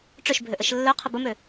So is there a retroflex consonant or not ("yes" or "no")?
yes